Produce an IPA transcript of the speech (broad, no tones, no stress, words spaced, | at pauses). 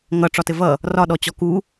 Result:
ŋʌ ʈ͡ʂɒtɘvʌ | rɒɗɔ t͡ɕɔku